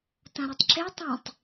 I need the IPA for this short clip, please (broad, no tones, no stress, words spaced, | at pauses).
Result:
tɐ̃ɾetˤǁe tˤĩtˤ